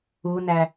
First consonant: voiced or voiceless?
voiced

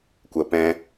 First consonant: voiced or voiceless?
voiceless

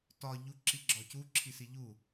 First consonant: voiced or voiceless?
voiceless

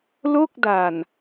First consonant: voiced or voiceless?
voiced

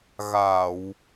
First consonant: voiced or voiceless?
voiced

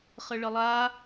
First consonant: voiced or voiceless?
voiceless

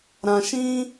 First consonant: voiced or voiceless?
voiced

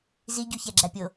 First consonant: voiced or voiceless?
voiced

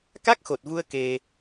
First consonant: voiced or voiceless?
voiceless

